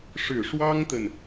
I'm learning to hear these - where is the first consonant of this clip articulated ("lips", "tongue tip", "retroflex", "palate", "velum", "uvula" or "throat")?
retroflex